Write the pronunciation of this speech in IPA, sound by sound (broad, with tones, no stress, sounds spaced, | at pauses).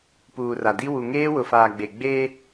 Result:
p uː˨ r a˨ d i˦ w u˨ ŋ eː˦ w ʊ˨ f aː˨ ɡ͡b e˨ ɡ͡b eː˦